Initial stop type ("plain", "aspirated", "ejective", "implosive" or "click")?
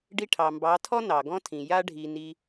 plain